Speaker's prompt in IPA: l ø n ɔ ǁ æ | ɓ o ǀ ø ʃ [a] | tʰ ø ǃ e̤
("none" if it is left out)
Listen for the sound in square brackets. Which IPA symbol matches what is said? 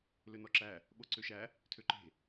æ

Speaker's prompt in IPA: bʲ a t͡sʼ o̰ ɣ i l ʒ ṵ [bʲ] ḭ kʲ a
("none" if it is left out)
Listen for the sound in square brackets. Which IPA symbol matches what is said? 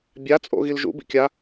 b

